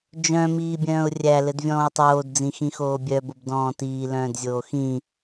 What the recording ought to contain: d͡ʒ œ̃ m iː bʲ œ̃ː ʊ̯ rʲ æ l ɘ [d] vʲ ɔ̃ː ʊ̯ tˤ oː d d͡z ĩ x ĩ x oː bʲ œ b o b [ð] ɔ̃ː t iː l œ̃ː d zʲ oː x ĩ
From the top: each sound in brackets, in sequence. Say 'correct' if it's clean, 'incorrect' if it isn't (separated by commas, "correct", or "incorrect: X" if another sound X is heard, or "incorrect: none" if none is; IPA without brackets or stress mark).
correct, incorrect: d